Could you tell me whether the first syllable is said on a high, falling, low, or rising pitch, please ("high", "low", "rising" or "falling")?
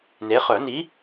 rising